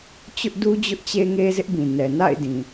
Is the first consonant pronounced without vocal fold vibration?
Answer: yes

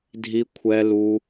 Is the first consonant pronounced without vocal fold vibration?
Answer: no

